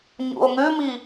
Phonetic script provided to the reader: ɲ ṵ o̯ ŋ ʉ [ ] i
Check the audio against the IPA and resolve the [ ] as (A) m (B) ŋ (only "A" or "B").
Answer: A